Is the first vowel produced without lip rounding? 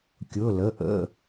no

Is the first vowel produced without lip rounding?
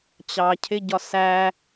yes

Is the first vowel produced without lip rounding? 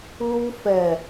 no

